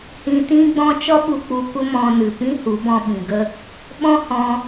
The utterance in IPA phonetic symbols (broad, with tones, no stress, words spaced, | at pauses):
hĩ˧tĩ˦ɡ͡bɔ̃˦ t͡ʃɔ˦ɓu˧ k͡pu˧kʷə˦mɔ̃˧nɨ˨ pĩ˦hu˨˦bɔ̃˧ ɓĩ˨ɡə˦ | ɓɔ̃˦hɔ̃˧